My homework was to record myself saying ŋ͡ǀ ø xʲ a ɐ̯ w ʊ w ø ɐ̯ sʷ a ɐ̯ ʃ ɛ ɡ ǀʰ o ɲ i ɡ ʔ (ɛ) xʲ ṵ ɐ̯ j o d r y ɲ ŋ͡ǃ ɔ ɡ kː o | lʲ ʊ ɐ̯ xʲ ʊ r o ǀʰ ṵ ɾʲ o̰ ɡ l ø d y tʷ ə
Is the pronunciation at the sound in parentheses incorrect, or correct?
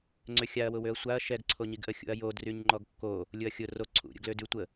incorrect